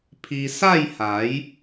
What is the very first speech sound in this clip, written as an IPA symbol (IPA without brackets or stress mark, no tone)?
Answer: pʰ